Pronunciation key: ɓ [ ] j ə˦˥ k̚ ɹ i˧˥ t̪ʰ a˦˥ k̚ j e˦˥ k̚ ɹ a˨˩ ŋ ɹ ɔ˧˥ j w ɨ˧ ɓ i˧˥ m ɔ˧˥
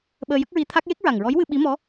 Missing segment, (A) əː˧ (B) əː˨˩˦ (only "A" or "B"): A